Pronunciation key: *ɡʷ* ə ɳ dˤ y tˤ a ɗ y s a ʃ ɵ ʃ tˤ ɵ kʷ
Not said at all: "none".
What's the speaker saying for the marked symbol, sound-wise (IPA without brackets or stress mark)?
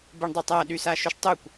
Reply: b